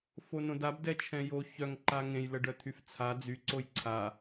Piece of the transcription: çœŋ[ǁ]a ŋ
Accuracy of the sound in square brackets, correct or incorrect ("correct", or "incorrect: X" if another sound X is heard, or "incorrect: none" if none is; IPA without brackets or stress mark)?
incorrect: ǃ